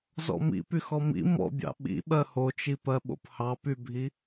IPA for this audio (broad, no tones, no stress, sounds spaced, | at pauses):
z ɔ̰ m ḭ p y x ɔ m ḭ m ɔ̰ bʲ ɑ̰ ɓ ḭ ɓ ɜ h o t͡ʃ i p ɜ ɓ o̰ p h ɑ p y bʱ i